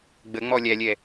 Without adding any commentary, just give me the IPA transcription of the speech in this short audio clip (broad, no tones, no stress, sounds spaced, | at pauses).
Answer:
ɡ͡b ə ŋ͡m ɔ lʲ æ lʲ ɛ